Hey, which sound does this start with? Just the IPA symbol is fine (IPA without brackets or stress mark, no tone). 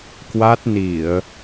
k